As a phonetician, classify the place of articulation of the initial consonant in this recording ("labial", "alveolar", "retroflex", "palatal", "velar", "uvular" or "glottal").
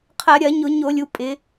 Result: uvular